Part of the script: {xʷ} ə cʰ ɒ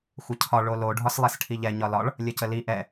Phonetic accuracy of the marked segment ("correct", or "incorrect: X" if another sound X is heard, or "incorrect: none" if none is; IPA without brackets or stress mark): correct